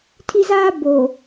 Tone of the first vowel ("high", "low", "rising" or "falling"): high